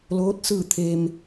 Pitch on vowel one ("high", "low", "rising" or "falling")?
rising